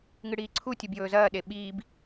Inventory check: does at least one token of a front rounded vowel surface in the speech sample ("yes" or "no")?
no